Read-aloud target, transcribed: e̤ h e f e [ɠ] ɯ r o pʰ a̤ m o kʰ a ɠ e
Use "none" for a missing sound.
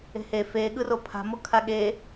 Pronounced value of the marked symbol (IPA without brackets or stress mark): ɠ